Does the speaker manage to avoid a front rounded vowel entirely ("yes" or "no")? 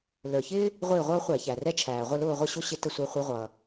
yes